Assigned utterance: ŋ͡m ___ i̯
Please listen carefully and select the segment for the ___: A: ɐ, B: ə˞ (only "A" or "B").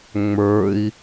B